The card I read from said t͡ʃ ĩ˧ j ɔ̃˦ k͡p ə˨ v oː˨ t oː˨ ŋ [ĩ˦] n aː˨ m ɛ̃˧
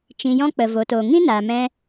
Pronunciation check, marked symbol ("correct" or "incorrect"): correct